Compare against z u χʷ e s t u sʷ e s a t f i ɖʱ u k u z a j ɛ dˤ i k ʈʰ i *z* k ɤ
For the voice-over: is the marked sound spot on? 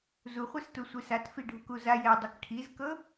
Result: yes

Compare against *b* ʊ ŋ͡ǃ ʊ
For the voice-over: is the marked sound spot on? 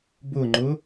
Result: yes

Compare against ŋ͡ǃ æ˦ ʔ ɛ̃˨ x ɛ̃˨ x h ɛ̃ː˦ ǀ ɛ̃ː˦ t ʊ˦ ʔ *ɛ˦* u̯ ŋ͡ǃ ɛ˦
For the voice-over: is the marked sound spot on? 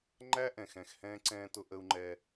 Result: no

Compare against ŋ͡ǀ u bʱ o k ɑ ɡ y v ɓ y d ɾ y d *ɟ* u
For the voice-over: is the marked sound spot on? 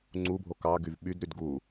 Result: no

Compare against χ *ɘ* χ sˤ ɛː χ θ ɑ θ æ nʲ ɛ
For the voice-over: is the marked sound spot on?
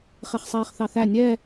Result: no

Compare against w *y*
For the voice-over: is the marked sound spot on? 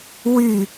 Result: yes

